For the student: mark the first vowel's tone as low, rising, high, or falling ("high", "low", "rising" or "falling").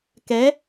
rising